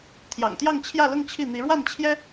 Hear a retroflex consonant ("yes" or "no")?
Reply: yes